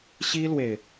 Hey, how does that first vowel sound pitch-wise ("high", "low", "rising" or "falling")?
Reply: high